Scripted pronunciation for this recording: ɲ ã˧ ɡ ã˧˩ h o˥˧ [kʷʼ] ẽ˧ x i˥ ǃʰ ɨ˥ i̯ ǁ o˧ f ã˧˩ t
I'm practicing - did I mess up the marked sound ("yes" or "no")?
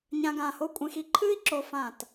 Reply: no